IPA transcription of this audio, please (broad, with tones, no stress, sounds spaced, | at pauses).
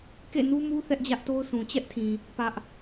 k ḛ˦˨ n u˦ m u˦ θ ɛ˦ ʔ d͡ʑ ä˦ ʔ t o˦ ʊ̯ s ũ˨ t͡ɕ ɛ˦ ʔ tʰ ĩ˨ | p ä˦ ʔ